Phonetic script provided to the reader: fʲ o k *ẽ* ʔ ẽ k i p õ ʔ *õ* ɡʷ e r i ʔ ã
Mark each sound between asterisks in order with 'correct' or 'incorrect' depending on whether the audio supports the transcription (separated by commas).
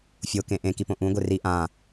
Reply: correct, incorrect